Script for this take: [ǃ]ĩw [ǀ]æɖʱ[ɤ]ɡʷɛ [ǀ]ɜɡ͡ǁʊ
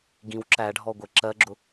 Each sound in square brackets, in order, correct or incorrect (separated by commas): incorrect, incorrect, incorrect, incorrect